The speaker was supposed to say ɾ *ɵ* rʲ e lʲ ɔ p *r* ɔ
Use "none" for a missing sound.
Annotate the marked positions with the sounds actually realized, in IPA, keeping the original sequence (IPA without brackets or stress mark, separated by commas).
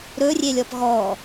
ɵ, ɣ